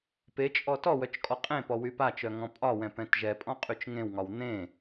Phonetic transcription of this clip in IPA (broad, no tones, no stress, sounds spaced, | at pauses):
p e t͡ʃʼ ɔ t ɔ w œ t͡ʃ kʼ ɔ qʼ ẽ p ɔ w y p a t͡ʃ œ ŋ ɔ̃ pʼ ɒ w ɛ̃ p ɛ̃ t ʒ ɛ pʼ ɔ̃ qʼ y t͡ʃ ŋ ẽ w ŋ ɒ w n̪ ẽ